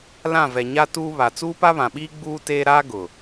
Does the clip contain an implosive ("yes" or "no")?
yes